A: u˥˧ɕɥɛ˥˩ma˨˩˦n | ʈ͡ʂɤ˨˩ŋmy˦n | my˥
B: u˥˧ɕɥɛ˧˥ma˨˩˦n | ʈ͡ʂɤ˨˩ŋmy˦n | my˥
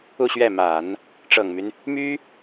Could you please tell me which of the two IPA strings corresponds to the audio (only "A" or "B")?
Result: A